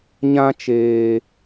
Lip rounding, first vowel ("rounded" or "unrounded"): unrounded